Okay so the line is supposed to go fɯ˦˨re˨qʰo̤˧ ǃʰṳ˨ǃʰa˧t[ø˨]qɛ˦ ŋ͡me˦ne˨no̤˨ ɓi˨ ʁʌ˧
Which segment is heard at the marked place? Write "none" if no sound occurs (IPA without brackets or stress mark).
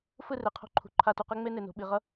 u˨